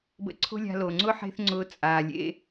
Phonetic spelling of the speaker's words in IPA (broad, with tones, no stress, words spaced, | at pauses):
bə̰˧ ǀʰo̤˥lʲa̤˧ lo˩ŋ͡ǀʊ˥ ħe̤˥θŋ͡ǀʊː˧ t͡sʼaː˩lʲḛ˧